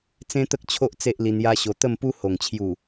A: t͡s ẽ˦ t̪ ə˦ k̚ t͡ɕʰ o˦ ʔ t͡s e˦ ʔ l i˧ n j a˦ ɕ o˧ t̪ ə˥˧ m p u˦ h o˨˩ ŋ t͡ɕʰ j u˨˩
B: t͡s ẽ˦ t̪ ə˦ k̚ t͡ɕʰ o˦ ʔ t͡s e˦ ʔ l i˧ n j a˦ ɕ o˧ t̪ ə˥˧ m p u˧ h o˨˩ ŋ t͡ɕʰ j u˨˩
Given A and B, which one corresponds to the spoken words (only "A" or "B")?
A